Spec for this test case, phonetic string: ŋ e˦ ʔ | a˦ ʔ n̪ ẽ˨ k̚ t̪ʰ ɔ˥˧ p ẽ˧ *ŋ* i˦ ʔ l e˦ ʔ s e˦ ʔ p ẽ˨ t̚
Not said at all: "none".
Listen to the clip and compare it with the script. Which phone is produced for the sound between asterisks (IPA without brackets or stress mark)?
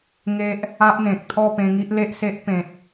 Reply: ŋ